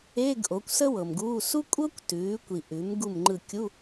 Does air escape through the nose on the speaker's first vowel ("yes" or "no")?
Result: no